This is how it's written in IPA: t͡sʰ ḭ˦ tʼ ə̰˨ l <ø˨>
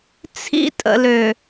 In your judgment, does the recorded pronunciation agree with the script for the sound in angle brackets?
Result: yes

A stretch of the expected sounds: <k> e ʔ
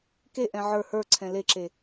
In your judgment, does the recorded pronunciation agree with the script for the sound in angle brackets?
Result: yes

